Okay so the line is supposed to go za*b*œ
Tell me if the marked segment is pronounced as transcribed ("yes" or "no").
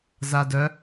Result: no